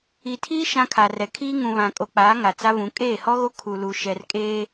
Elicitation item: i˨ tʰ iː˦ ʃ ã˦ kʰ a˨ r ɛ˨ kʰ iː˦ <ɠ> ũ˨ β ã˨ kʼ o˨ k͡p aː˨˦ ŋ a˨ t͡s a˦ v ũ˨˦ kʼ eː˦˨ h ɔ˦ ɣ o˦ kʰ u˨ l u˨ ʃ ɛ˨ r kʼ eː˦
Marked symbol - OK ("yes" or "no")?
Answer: no